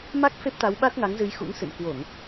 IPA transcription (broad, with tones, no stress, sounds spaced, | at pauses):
m a˦˥ k̚ f e˦˥ p̚ t̪ a˨˦ w ɓ a˦˥ t̚ ŋ a˨˦ ŋ z ɨ˨˦ j x ṵ˧˥ ŋ s ɨ̰˧˨ n k w o˧˩˨ ŋ